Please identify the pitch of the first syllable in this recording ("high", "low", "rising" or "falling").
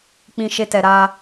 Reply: high